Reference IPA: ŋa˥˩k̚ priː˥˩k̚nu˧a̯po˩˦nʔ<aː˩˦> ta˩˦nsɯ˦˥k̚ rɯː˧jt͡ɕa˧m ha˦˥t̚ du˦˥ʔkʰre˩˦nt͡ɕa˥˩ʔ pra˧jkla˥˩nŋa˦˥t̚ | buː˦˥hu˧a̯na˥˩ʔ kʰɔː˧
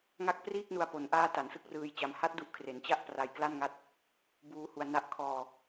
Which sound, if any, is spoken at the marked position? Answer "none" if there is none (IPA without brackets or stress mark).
aː˦˥